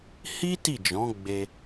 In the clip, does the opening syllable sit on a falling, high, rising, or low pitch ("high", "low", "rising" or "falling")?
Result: high